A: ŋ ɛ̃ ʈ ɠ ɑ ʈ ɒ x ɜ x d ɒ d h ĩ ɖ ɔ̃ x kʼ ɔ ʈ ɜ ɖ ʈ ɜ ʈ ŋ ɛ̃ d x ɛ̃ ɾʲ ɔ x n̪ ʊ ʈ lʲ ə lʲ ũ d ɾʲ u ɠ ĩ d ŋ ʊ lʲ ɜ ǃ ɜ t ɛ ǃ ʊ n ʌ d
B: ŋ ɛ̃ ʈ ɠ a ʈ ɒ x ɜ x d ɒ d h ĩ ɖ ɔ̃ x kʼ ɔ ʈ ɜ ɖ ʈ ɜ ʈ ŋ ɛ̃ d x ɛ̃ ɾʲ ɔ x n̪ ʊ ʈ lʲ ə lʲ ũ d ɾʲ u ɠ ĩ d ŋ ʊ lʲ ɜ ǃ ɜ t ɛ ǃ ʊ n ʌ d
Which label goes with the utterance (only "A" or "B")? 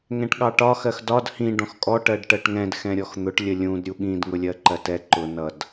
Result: A